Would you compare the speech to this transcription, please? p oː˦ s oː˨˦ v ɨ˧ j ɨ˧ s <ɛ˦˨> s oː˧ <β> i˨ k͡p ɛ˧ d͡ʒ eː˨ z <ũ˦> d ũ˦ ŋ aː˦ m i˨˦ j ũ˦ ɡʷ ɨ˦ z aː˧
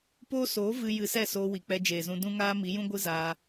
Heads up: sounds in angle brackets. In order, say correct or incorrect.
correct, incorrect: w, incorrect: ũ˧

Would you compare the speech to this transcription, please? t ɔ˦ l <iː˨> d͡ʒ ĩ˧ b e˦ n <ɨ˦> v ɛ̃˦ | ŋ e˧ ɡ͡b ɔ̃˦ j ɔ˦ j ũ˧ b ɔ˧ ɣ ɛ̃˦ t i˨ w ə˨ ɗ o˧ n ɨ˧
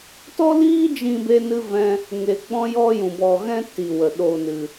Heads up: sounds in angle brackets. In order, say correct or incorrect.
incorrect: iː˦, correct

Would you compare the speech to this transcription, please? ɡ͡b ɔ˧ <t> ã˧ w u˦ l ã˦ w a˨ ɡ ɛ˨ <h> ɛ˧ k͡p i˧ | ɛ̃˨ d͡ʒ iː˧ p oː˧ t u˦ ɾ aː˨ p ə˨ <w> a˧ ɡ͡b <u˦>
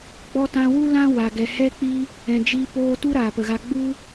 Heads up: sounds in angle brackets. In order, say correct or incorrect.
correct, correct, incorrect: ɣ, correct

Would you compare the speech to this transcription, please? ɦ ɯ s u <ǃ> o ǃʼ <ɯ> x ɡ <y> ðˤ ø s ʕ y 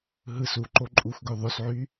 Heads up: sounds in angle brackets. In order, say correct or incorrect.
correct, incorrect: u, incorrect: ø

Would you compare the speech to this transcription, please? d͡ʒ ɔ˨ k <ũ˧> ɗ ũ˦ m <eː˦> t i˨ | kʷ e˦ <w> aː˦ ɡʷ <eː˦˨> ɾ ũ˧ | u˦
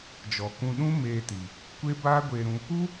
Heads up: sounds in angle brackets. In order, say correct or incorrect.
correct, incorrect: eː˧, incorrect: b, incorrect: eː˧

